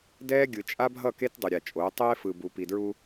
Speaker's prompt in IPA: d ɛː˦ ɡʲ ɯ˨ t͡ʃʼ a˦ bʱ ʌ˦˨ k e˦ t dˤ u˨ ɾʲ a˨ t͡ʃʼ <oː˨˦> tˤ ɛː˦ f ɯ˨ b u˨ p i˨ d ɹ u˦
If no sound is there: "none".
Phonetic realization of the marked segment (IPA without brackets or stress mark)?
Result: oː˨˦